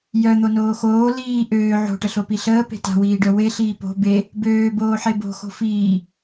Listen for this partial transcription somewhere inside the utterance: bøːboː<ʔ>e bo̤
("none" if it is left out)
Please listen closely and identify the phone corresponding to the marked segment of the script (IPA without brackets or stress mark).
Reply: ħ